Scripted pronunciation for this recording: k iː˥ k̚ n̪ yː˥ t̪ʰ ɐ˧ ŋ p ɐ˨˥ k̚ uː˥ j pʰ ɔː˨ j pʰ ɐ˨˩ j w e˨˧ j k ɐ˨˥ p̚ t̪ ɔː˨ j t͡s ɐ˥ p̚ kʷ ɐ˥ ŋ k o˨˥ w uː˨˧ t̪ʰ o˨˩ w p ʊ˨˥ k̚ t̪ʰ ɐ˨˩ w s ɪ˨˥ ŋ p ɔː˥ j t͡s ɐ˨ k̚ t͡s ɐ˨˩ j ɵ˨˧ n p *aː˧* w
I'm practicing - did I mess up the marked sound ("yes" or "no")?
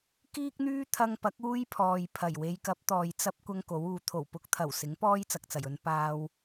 no